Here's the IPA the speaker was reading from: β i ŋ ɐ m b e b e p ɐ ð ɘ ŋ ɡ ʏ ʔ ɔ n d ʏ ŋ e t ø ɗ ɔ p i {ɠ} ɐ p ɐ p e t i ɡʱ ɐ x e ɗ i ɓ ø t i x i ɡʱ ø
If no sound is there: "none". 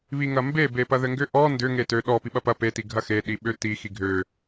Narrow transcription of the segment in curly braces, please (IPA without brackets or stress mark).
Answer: ɓ